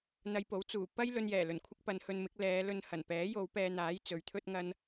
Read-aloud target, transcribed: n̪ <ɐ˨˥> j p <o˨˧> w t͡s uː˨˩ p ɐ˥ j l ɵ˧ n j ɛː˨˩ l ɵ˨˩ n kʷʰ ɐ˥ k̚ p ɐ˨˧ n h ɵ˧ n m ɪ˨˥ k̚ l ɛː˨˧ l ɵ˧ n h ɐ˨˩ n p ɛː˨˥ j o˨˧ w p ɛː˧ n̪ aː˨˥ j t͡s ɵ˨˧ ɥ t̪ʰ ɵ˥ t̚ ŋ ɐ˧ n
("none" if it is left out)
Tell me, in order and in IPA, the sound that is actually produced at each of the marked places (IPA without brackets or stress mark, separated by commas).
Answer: ɐ˧, o˨˥